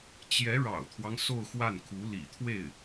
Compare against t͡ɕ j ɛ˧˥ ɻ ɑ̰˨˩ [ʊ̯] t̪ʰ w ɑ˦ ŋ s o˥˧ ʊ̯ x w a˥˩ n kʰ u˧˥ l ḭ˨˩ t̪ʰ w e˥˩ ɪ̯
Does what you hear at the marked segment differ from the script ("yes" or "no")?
no